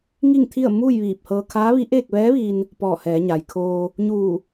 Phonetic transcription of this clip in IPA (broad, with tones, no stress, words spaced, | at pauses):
ŋi˥˨ŋt̪ʰi˥˨ə̯ muː˥˨jʋiː˧˩p̚hɤː˧ kʰaː˧˥ʋi˧˥ ʔeː˥˨k̚ʋɛː˧˥ʋiː˧n | pɔː˧˩hɛː˩˧ɲa˩j kʰoː˧ | ɲuː˧˩